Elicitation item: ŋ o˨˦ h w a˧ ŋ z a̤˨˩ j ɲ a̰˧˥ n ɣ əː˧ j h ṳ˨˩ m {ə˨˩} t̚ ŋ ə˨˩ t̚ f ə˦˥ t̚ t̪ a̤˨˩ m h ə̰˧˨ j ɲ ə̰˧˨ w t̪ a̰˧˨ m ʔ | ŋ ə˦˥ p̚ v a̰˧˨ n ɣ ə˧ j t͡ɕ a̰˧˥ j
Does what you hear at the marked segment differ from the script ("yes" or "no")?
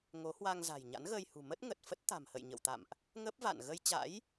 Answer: yes